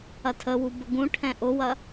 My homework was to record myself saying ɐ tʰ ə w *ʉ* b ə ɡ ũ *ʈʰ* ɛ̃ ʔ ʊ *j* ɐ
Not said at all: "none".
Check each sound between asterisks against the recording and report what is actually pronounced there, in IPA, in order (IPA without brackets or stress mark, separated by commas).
u, ʈʰ, w